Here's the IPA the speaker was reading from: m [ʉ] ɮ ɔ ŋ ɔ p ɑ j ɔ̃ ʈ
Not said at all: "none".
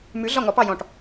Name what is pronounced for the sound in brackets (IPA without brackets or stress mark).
ʉ